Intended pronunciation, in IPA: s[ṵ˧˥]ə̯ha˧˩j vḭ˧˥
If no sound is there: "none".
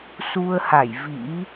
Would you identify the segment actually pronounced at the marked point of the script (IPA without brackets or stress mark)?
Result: u˧